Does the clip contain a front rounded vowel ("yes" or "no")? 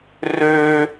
yes